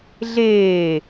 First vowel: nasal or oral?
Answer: oral